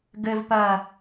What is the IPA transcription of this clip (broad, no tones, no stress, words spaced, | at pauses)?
ɡɘvpɐ